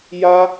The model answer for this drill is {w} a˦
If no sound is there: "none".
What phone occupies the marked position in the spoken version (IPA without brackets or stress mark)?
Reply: j